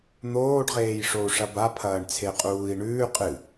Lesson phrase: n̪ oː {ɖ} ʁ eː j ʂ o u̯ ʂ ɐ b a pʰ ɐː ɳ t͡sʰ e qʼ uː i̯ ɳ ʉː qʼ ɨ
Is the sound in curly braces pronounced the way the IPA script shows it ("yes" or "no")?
yes